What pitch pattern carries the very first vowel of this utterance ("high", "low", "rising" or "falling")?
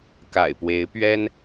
low